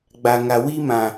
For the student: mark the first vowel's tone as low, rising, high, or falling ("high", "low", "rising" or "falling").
low